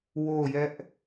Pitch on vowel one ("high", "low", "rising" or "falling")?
falling